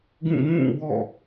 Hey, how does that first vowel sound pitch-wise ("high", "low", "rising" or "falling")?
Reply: falling